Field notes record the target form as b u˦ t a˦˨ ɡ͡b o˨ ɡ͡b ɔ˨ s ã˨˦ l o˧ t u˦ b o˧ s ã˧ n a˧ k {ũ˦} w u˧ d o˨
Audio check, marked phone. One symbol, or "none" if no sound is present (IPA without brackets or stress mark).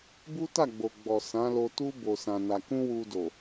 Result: ũ˦